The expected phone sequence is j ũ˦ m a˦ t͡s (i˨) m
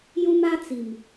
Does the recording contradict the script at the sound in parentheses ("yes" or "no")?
no